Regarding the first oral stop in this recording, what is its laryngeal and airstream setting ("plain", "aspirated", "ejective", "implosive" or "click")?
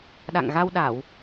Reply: implosive